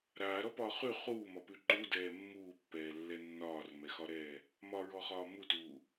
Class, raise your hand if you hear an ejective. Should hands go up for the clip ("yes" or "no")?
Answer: no